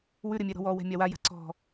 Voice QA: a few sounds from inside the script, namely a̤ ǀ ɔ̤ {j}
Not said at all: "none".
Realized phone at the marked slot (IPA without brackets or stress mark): none